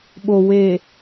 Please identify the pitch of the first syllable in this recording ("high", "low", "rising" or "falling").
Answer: low